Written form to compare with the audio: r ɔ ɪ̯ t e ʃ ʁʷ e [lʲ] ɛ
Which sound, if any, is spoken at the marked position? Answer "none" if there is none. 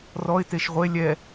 lʲ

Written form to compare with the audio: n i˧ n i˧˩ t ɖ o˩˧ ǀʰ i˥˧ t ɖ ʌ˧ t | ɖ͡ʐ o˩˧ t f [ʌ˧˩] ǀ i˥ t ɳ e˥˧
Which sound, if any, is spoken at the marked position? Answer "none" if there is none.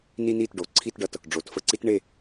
ə˧˩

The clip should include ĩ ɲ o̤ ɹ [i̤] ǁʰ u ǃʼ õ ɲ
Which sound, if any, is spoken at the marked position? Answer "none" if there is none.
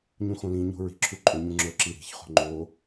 i̤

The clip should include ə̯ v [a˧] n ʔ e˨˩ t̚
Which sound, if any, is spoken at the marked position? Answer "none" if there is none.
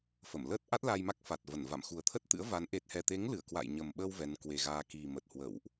a˨˦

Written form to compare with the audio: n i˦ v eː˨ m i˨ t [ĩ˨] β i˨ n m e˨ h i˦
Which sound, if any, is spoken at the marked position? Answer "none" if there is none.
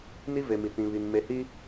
ĩ˨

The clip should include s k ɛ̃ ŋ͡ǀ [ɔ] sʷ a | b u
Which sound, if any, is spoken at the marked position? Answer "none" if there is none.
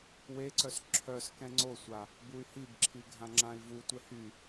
o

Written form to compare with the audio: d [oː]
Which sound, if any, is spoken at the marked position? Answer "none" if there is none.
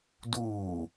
uː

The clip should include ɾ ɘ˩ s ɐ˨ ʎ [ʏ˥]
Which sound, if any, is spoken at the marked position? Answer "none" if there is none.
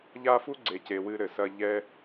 ɛ˥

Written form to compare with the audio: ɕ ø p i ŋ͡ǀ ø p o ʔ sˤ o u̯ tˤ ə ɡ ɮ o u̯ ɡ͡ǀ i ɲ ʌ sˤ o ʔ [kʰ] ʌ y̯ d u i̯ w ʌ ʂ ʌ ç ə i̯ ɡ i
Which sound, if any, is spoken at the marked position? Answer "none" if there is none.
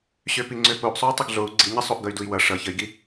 ɡ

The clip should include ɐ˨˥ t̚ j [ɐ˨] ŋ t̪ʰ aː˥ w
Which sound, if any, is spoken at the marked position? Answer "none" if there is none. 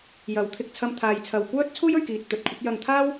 ɐ˧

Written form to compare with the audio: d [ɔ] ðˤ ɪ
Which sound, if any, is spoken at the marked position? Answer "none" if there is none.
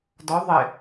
ɔ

